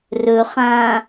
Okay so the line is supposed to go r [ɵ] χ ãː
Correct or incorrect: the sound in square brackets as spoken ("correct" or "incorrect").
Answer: correct